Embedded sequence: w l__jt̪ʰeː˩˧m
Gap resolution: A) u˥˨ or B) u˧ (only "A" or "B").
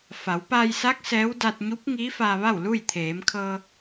A